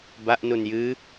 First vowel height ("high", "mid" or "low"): low